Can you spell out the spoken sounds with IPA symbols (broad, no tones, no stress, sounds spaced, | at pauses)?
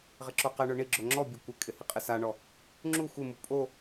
ʁ ɪ ǁ o q ɛ ɳ ʊ ɳ i ɡ͡ǁ o ŋ͡ǁ ɔ bʲ o kʷ ɪ kʼ ɪ h i qʼ e s a ɳ ɔ | ŋ͡ǁ u xʷ ɪ m u pʼ o